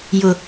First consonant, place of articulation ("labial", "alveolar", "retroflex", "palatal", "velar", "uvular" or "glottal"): palatal